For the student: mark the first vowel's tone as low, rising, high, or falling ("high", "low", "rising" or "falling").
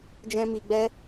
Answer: high